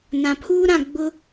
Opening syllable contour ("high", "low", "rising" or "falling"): low